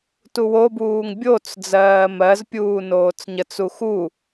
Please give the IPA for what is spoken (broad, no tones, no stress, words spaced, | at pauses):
tuwobuːŋ bʲot͡s d͡zɜːmɜzpʲuː noːt͡sɲət͡su xu